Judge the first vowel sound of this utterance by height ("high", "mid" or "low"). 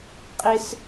high